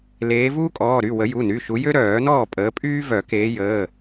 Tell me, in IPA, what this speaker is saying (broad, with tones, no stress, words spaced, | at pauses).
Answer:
leː˨˦vuː˥kʼɔː˩˧˩ɾy˩˧˩ wə˨˩˦ju˩˧˩ny˩˧˩ʃu˨˦ jø˥ ɾœː˨˩˦ nɔː˥˩pʼəː˨˦pʼyː˥ vœ˨˩˦keː˨˦jəː˩˧˩